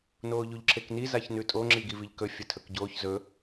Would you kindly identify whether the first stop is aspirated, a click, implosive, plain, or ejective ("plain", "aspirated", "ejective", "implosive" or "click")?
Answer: click